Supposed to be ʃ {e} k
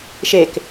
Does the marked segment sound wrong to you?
no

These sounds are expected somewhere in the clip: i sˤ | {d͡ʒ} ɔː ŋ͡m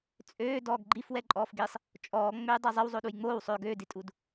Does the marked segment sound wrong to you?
yes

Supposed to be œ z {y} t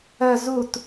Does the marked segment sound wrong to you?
yes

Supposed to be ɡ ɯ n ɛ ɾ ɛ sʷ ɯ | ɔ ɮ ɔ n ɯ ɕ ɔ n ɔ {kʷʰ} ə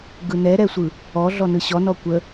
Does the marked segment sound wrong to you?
yes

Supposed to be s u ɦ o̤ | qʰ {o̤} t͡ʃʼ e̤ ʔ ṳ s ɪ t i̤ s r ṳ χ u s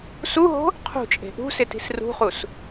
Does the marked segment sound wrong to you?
yes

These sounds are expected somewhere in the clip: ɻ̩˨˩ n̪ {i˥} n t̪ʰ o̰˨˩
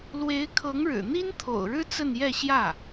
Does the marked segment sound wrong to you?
no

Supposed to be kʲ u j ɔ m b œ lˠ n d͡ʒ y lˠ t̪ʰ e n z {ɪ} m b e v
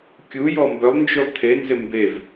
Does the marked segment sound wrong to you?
no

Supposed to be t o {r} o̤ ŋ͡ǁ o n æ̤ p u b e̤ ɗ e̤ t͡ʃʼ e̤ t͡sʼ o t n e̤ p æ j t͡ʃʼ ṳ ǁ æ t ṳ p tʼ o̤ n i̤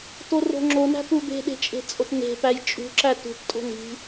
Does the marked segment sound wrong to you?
no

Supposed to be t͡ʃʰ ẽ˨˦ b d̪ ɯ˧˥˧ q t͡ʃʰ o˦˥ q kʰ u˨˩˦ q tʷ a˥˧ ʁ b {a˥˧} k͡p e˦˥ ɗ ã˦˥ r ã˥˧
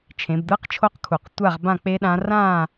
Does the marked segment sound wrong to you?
yes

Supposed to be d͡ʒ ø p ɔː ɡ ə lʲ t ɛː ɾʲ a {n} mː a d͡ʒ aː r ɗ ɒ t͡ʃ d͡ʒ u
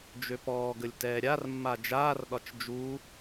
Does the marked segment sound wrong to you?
yes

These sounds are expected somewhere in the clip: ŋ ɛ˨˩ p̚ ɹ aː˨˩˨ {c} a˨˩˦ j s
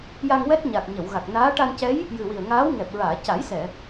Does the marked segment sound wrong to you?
no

